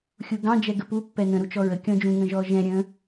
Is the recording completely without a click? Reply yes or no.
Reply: yes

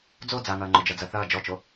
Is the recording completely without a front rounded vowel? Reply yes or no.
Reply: yes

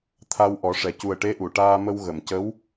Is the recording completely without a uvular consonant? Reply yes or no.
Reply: yes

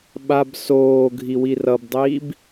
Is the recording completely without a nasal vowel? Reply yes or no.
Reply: yes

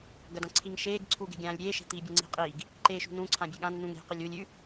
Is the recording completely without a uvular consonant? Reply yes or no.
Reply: no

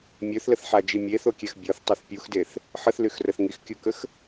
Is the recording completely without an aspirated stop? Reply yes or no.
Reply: yes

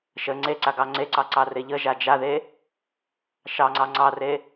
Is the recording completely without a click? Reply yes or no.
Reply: no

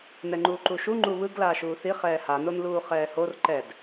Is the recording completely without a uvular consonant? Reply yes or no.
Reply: no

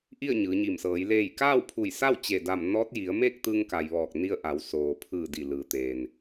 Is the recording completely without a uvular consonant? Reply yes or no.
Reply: yes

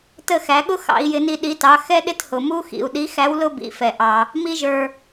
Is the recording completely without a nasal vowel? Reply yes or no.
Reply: yes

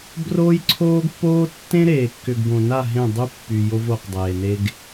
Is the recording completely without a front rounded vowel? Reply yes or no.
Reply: no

